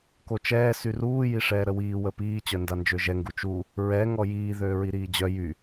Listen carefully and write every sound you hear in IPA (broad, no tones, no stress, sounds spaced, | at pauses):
k o t͡ʃ ɛː s y r uː j i ʂ ɛː ɾ ə w iː w ə p iː t͡ɕ œ n d a n d͡ʒ ø ʒ ɛ ŋ ɡ u t͡ʃ u | ɹ ɛ ŋ ɔ j iː ð øː ɹ i ɾ iː d͡ʑ œ j y